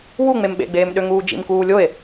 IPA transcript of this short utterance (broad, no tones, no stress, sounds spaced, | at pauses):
w u ŋ͡m e m ɓ ḛ ɡ͡b eː m ɗ ø ŋ uː d͡ʒ ḭ m k uː lʲ o e̯